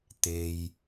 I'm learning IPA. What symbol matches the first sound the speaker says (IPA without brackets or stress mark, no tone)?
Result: t̪